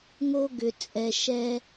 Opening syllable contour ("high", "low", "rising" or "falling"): high